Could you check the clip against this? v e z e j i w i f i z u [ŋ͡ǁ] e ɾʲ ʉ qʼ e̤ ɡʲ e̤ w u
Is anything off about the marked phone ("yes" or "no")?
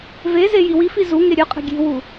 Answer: yes